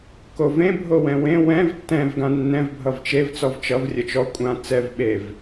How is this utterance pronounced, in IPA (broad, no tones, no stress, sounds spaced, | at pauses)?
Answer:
k o v ẽ bʱ o w ɛ̃ w ẽ w ɛ̃ v tː ɛ̃ v ɡ ã nː ɛ̃ v bʱ ʌ v t͡ʃ e v t͡s ɔ v t͡ʃ ʌ v rʲ ə t͡ʃ ɔ kʷʼ ã t͡s ɛ v ɓ e v